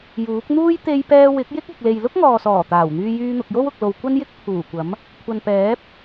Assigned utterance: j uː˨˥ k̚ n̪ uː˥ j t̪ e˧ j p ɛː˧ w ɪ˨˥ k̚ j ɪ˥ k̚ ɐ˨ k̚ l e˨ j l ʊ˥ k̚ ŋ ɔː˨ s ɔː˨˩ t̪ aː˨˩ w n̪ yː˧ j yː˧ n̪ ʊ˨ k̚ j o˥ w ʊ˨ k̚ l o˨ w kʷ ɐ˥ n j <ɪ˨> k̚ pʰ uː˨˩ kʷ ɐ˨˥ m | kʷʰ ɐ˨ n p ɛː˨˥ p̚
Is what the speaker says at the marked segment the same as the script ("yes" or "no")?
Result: no